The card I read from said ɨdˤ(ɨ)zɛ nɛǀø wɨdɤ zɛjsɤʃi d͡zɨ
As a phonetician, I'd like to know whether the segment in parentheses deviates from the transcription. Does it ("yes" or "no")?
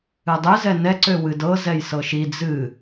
no